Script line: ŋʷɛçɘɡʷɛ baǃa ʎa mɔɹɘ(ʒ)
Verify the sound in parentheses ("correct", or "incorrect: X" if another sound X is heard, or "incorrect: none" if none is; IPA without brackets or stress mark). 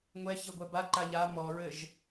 correct